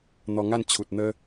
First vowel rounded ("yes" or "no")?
yes